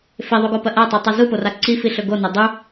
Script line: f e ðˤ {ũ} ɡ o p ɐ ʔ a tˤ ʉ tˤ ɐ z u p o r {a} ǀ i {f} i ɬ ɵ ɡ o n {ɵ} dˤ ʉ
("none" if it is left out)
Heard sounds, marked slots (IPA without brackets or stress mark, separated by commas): u, a, f, ɵ